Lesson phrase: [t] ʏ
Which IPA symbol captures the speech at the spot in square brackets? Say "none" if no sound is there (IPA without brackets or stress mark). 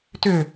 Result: t